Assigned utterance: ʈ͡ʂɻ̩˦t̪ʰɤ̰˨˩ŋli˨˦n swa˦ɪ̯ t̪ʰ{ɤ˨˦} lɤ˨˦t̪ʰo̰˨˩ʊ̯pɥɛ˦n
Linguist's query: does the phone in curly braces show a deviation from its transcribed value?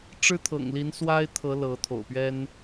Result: no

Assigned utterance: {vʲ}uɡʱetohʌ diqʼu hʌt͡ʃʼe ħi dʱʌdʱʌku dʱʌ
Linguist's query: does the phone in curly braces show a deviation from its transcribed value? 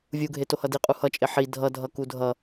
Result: no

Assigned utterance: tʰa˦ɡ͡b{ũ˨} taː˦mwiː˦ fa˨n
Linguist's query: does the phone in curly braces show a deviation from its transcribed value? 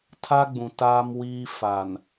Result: no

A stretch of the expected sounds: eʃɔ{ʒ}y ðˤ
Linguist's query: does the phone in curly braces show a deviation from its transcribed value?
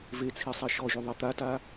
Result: no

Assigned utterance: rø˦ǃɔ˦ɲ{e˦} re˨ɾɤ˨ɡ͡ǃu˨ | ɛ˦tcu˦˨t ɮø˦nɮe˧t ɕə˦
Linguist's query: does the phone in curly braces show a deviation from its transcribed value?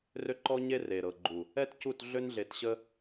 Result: no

